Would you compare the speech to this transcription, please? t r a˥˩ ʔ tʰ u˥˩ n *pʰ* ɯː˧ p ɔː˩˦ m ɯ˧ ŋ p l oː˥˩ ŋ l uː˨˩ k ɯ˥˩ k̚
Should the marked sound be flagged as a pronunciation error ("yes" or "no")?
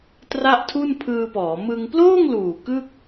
no